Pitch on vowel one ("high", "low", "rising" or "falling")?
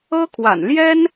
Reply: high